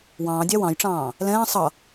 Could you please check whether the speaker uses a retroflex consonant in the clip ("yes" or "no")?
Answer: yes